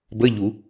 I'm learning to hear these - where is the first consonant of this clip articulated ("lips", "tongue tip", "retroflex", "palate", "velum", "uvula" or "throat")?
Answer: lips